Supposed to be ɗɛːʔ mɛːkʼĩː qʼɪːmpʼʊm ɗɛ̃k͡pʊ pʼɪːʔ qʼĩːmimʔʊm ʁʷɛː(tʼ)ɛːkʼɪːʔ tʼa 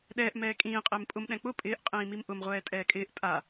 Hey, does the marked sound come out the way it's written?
yes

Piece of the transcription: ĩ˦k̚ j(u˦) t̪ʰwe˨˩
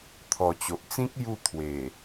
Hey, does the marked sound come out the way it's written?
no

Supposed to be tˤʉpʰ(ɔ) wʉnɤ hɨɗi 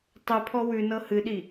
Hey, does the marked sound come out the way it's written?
yes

